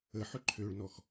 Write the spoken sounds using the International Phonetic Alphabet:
ə ħʏǃʰøɭnɔx

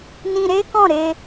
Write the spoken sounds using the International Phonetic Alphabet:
nĩ˧ɾe˦ kɔ̃˦˨ɾe˧

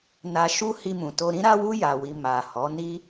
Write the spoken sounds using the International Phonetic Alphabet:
na˧ʃu˦ hi˧mũ˨to˧ ɾĩ˦ɾa˦wu˦ ja˧wi˧ ma˨hɔ˨˦ ni˦

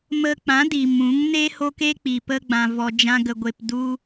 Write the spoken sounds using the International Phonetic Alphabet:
mə˧k͡pã˨˦ di˨mũ˨˦ŋne˦ho˦k e˦k͡pi˨ pə˦ ɡ͡bã˧vɔ˧d͡ʒã˦ ɡə˧ɡʷe˧p du˦

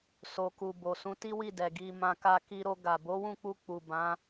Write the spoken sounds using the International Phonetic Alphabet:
so˨ku˨bo˨ sũ˨˦ti˦wi˦˨dɛ˨ ɡi˧mã˧ ka˧ki˧ɾo˧ ɡa˨bo˨˦wũ˦˨k͡pu˧ k͡pu˨bã˨˦

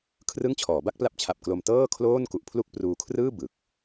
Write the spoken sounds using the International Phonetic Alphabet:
kʰrɯ˥˩ŋt͡ɕʰɔː˩˦ ba˥˩k̚pla˦˥p̚t͡ɕʰa˨˩p̚klo˧m tɤː˥˩kʰloː˥˩n ku˨˩ʔpʰlu˥˩k̚ pruː˧kʰrɯː˥˩ bɯ˨˩k̚

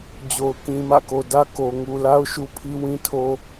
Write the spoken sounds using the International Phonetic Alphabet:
d͡ʑo˨ʊ̯ kĩ˨mä̰˦˨ko˨dä˦ ko˨ ŋu˨la˦ʊ̯ ʃu˦pʰi˦wĩ˦tʰo˦

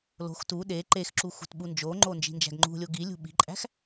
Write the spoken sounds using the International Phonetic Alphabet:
lo̤x tu ɗe ǃexǁu xṳtɓund͡ʒoŋ͡ǃo nd͡ʒi̤nd͡ʒæ̤ɡŋ͡ǃṳlʲo ɡilʲṳ ɓi̤ǃʼæ̤x

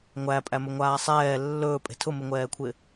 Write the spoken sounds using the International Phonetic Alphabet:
ŋʷæpʼæmɵŋʷaː sˤɛː lːɵːpʼe̤ tʰʊmɪŋʷɛːkʷʰɪ

